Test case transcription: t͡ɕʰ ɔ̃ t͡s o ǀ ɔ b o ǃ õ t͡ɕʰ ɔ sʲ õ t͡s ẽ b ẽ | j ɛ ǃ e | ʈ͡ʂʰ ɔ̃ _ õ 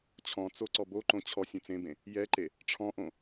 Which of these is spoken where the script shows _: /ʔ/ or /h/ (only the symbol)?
ʔ